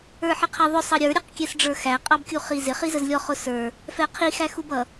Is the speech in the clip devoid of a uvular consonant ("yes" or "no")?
no